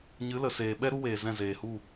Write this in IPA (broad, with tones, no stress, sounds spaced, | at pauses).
ɲ ɨ˨˦ l ə˨ s eː˨ ɓ ɛ˦ ɾ u˦ w eː˨ z ɛ̃˦˨ z eː˨ h u˦˨